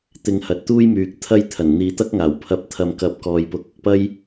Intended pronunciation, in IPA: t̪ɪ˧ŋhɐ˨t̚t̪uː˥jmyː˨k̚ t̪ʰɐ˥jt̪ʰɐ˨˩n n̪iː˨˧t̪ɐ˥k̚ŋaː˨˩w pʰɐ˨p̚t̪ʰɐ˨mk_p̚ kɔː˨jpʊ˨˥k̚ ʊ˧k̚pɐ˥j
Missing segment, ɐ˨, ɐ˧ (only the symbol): ɐ˨